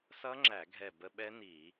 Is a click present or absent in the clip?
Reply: present